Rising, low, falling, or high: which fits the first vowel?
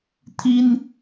high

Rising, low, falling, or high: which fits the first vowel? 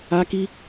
high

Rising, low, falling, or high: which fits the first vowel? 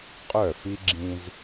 falling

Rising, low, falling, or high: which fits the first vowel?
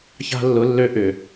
high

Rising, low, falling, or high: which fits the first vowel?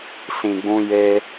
low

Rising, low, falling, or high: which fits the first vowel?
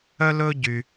high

